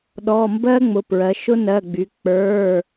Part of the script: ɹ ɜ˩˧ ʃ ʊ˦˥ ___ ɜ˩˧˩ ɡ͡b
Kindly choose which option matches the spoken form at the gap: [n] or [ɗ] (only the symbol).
n